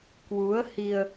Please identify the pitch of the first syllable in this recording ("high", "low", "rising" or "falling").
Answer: rising